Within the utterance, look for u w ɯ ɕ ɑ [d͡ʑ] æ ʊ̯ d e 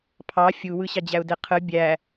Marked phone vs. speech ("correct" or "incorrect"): correct